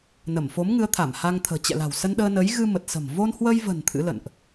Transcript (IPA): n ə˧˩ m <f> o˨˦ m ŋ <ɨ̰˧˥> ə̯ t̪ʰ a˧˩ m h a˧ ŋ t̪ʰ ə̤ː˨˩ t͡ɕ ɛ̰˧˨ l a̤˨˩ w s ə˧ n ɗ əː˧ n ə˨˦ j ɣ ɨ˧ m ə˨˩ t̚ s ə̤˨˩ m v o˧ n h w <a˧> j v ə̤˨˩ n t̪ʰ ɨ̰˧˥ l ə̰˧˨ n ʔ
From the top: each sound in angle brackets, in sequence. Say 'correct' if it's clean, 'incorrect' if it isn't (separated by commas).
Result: correct, incorrect, incorrect